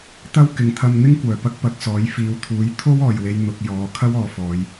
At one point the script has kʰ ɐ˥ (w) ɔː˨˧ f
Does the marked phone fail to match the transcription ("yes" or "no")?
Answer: no